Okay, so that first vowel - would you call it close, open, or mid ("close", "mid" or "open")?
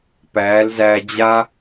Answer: open